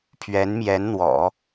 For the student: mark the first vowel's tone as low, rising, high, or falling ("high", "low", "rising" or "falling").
rising